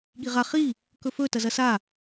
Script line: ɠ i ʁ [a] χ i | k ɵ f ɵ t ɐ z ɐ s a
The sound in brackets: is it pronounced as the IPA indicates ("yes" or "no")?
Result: yes